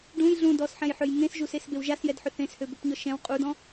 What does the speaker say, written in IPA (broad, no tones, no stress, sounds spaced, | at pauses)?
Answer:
ɖ ũ j ɮ ũ d ɔ s ħ ɛ̃ j ħ ø j ŋ ẽ s ʒ u s e s b e w ʒ a s j ɛ d ħ ʏ θ ẽ s h ø b ʏ p ɲ ɔ ʃ ɛ̃ w qʼ u d ɔ̃